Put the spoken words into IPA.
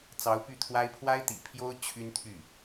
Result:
t͡sɑ˧˥ʊ̯py˥˩t̪ʰwa˥ɪ̯ pʰwa˥ɪ̯t̪ḭ˨˩pʰjo˥ʊ̯ t͡ɕʰy˥nt̪ʰy˥˩

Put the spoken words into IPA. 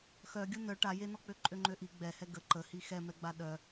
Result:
xœɡʲu nœ ʈa jenɔk͡pø ǃʼøŋ͡ǃøʔi ɡ͡bɛhɛ ɡə ǃəhi xɛmɛɡ͡ba ɗœ

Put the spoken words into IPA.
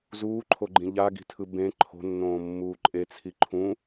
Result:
zuːǃʰoɡ͡ǃĩ ʎaɡi̤tʰɯ bẽ ǃʰo̤nːõːmːuː ǃʼet͡sʰi ǃʰũ

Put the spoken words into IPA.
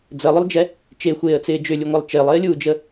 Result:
d͡zəlˠʏlˠd͡ʒɛ | t͡ʃexʷeːə̯t͡sɪː d͡ʒʏlʲuŋʷɛlˠ t͡ʃɪːlˠɪːlʲuːd͡ʒə

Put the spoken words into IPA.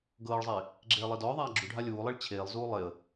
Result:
ɡɤːɭzˤeː | ɡ͡ǁeːlˠedɔːðˤaː ɡ͡ǁuɖʱa lʲuːlˠeɭ t͡ɕʰeːlˠzuː lˠeə̯

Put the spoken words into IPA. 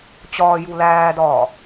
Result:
t͡ɕɒːju læːdɒː

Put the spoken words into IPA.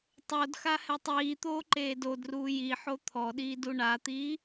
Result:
tˤodxa hɛtˤiːt̪oː ǃeːdodruː jiħo t̪ʰɔɗiːd uɳat̪iː

